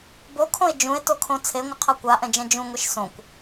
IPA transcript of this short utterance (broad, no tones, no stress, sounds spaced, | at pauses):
b o kʰ õ e̯ d͡ʒ ũ e̯ t o kʰ õ t͡sʰ e ŋʷ ʌ qʰ ʌ kʷ a ʔ ɛ̃ d͡ʒ ɛ̃ d͡ʒ ũ ŋʷ e ʃ s õ kʷ